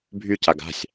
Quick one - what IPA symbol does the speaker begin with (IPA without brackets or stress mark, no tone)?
bʱ